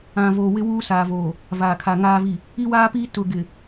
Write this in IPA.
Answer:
ã˨ v o˨ w ɪ˦ w uː˦ s aː˨ v oː˨ | v aː˨ kʰ a˨ ŋ aː˨ v i˨ | i˦ w aː˦ p iː˦ t ʊ˨ ɡ ɪ˨

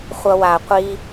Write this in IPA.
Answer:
χʷ ʌ˧ w a˨ qʷ i˧

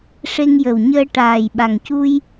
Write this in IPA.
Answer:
ʂ e˧ ŋ j ə˨˩ w ɲ əː˧ ʈ aː˨˩ j ɓ a˨˩ ŋ c u˧ j

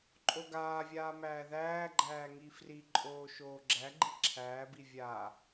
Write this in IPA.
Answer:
ǃʼ o ɡ aː vʲ aː m æː ð æː ɡ͡ǃ æː ŋ i f r i ǃʼ oː ʃ oː ɡ͡ǁ æ ɡ͡ǃ i ǁʰ æː b i vʲ a

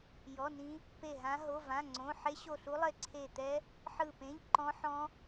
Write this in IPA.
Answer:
j ɔ˧˥˧ n ĩ˦˥ | p e˦˨ ɦ ã˦˥ ɦ o˧˥˧ v ã˧˥˧ ŋ͡ǀ õ˧˥˧ ħ e˦˥ ɕ o˦˨ ɬ u˦˥ lˠ e˦˨ ǀʰ e˦˨ t̪ ɛ˦˥ | ħ ɯ˦˨ p ẽ˧˥˧ ʎ ǃ ɔ̃˦˥ ħ ɔ̃˦˥

